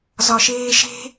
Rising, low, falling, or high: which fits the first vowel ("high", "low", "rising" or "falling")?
low